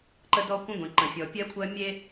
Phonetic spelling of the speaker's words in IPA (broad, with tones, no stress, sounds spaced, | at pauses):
ǃ ə˦ d ɔ˦ kʷ ə̃˦ ɡʷ ẽ˨ ǃ ə̃˨ fʲ ɔ˨ pʲ ɜ˦ kʷʰ ɜ˦ mʲ e˦